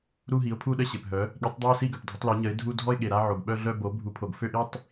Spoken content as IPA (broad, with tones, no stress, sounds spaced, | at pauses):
ɾ u˥˧ ɦ i˩˥ ʊ̯ pʰ u˥˧ ɗ ə˥˧ ɕ e˩ p ɦ œ˩˥ | ɠ i˩˥ tˤ dˤ œ˥˧ ʊ̯ s i˥˧ ɡ œ˩ p dʱ ə˩˥ tˤ l e˩˥ ɲ ə˩˥ ɪ̯ dʱ u˥˧ dʱ ɔ˥˧ ɪ̯ ɠ e˩ ɾ a˥˧ ʕ o˩ ɡ ɓ œ˥˧ ɮ œ˥˧ b o˩˥ bʱ u˩˥ pʰ o˩ ɡ f ø˥˧ ʔ i˥˧ tˤ